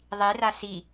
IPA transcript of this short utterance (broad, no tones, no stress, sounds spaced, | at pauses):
ðˤ i r a s i